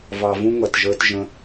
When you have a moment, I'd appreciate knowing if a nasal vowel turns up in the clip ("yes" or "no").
yes